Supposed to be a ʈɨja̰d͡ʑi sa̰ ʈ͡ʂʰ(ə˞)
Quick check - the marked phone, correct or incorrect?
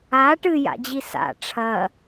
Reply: incorrect